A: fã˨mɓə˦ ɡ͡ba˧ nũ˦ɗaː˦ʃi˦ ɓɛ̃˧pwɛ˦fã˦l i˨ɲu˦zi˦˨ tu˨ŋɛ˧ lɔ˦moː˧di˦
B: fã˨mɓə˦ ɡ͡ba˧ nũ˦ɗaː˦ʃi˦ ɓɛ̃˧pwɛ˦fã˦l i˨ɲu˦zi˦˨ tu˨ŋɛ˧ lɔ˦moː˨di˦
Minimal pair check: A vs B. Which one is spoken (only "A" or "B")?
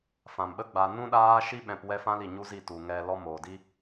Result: B